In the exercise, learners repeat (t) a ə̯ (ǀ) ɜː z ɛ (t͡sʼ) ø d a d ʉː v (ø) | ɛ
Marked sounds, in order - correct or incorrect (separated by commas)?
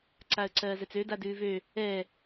incorrect, correct, incorrect, correct